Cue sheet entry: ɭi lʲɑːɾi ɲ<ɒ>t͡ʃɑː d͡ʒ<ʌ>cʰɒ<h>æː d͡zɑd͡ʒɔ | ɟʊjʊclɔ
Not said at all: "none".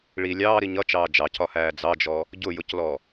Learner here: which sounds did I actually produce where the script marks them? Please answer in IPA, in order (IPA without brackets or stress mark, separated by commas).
ʌ, ɑ, h